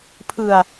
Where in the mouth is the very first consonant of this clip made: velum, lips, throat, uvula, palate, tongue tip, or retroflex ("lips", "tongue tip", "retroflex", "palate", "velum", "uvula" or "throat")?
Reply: lips